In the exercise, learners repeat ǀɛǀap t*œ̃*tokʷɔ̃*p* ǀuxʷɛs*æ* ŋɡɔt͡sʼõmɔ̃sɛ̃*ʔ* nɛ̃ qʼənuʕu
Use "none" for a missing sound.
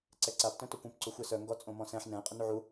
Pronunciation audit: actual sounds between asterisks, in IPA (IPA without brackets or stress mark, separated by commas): œ̃, p, œ, ħ